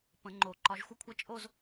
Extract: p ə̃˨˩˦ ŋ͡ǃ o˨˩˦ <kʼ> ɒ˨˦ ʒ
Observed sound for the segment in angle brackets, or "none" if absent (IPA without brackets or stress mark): ǃ